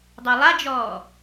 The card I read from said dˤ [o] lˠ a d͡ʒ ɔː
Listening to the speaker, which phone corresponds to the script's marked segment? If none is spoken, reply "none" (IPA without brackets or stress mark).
o